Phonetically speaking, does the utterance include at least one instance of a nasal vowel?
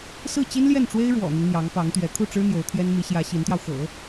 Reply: no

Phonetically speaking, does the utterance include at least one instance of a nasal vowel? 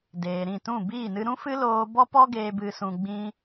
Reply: yes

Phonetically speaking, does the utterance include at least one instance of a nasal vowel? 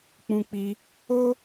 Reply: yes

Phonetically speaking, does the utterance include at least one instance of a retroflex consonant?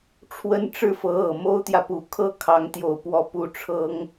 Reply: yes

